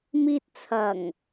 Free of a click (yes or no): yes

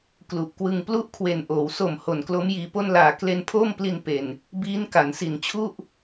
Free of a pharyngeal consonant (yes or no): yes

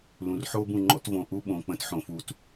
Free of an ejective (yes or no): yes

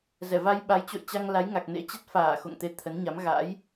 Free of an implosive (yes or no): no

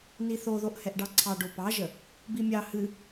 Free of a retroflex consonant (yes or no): no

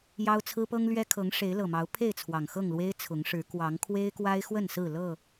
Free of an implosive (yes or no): yes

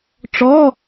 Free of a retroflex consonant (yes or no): no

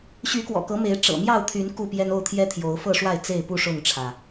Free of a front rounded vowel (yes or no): no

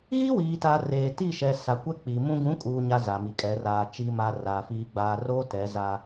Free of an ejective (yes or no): no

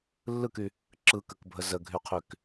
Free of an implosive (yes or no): yes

